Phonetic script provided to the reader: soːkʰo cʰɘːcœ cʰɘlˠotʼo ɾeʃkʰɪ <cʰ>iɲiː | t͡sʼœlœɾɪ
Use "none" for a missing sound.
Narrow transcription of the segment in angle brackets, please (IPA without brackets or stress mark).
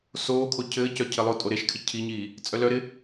cʰ